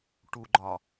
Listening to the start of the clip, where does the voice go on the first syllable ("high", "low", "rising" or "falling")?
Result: low